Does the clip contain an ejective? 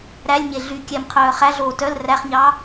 no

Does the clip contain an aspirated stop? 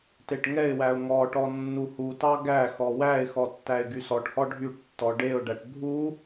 no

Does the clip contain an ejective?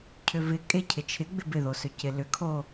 yes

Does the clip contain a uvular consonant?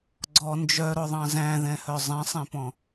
no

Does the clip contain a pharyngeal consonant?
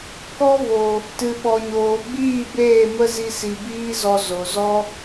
no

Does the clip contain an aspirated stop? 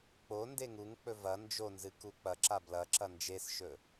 no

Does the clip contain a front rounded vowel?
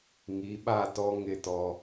no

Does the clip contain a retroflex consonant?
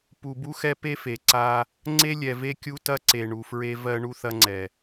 yes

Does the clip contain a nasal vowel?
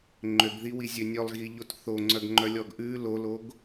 no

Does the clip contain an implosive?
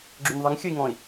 no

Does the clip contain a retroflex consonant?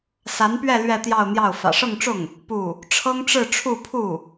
yes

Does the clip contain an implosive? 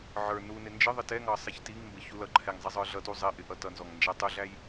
no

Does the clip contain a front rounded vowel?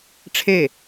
no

